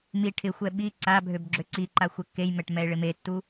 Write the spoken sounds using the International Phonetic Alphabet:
m i ʈʰ ɪ xʷ ɛ ɓ i ǀ a bʱ ø b ɡ͡ǁ ø ǀ i ǃ a xʷ ɛ kː e j m ɛ ʈ m ɛ ɪ̯ ɭ ɪ m e tː u

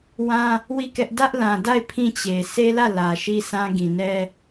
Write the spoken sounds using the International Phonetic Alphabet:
w ã˦ | w i˦˨ k ɛ˦ ʔ d ä˦ ʔ l ã˨ d a˦˨ ɪ̯ pʰ ĩ˦˨ t͡ɕ e˨ sʰ e˦ l ä˦˨ l ä˨ ʃ i˦ sʰ ã˦ ɡ ĩ˨ n ɛ˦

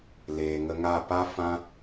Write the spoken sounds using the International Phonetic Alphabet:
l eː˨ ŋ ə˧ ŋ a˦˨ p a˦ f ã˦

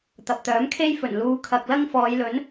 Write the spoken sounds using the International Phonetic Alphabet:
t̪ ɐ˨ p̚ t̪ œː˨˥ m kʰ e˥ j f ɵ˨˩ n l uː˨˧ kʰ ɐ˨ k̚ l ɐ˥ ŋ f ɔː˨˧ j l ɵ˨˥ n

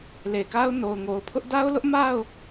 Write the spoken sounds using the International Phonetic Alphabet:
l e˨ k a˦ ʊ̯ n o˨ ʊ̯ ŋ o˨ ʊ̯ pʰ ʊ˦ ʔ d a˦ ʊ̯ l ʊ˦ ʔ m a˦˨ ʊ̯

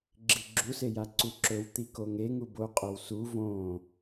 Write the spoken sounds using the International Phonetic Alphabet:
ɡ͡ǁ i ɡ͡ǁ u s e j a ǀ u ǁ ɵ w t̪ i k o ŋ e ŋ u b o qʼ o w s u v õː

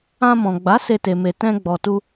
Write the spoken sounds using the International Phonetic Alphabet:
ã˧ m ɔ̃˨ ɡ͡b a˨˦ s e˧ t e˨ m e˨ t ɛ̃˧ ɡ͡b ɔ˨ t u˧

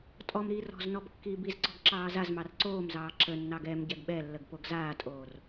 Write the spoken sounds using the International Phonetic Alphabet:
tʼ ɔ m ɾ iː r ɔ̤ z n ɔ b kː iː b i z ǀ ɔ̤ ɡ ǁ ɑː z a z m ɑ r ǀ oː m z ɑː ǁ ə nː ɑ ɡ ɛ m ɟ ɛ ɡ ɓ ɛ lː ə ɡ p o ɡ z aː tʼ oː r

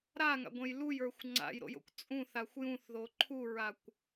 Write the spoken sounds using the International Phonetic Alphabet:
ɾ a ŋ a̰ ɡʷ ɛ̃ j l u j ə˞ xʷ ŋ͡ǀ a̰ j ɾ o̰ j o̰ kʷ t͡sʼ ũ θ a xʷ j ũ θ ð o ǃʰ u ɹ a kʷ

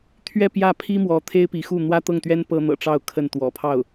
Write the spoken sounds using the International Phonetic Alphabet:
t̪ʰ ɥ ɛ˥˧ p j ä˥˩ pʰ i˥ m w ɔ˧˥ t̪ʰ e˥ ɪ̯ p i˧˥ x u˥˩ n̪ w ä˥ t̪ ɤ˥˩ ŋ t̪ ɥ ɛ˥ n p ɤ˥ n̪ ɤ̰˨˩ ʈ͡ʂ ɑ˥˧ ʊ̯ kʰ ə˥˩ n t̪ w ɔ̰˨˩ pʰ ɑ˥˩ ʊ̯

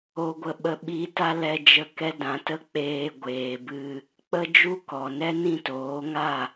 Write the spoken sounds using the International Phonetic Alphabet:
o˧ ɡʷ ə˧ ɓ ə˧ ɓ i˧ t a˦ l ɛ˧ d͡ʒ ə˦˨ k ɛ˦ d ã˨˦ t ə˦ k͡p eː˧ ɡʷ eː˨ b ɨ˧ | k͡p ə˦ d͡ʒ u˦ k ɔ˨ n ɛ˦ n ĩ˦˨ t oː˨˦ ŋ a˦˨

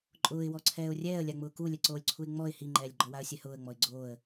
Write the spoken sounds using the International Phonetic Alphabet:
ǃʼ ʊː ɪ̯ w ɔ ǀʰ ɛː ʊ̯ rʲ ɛː ə̯ lʲ a ŋ͡m ʊː k u lʲ ɛ ǀ oː lʲ ǀʰ u ɪ̯ ŋ͡m ɔ ɪ̯ h i ŋ͡ǃ ɛː lʲ ɡ͡ǃ ɔ w a ə̯ sʲ ɛ h ʊː ə̯ ŋ͡m ɔ ɪ̯ ɡ͡ǀ oː ə̯

